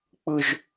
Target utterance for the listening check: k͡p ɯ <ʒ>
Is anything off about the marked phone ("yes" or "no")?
no